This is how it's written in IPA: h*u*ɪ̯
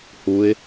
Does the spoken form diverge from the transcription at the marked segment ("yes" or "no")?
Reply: no